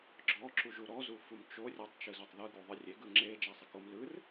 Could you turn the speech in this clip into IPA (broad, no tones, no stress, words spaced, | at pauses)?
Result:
ɡ͡ǁɔ ǁuʒuɾɔzu fumt͡ʃo rʲatˤt͡ʃɯzutˤðɯ ɡuðˤɯrʲe ɡɯŋ͡ǁe d͡ʒasˤekom lɯr